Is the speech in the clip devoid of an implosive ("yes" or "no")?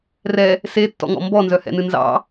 yes